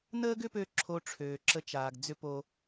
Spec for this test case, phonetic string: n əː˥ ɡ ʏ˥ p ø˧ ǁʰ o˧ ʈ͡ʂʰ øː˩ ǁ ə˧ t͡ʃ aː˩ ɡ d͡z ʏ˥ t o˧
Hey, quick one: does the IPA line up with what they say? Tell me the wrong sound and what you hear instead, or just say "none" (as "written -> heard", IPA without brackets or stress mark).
t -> p